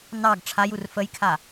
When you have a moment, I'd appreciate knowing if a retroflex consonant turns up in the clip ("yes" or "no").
yes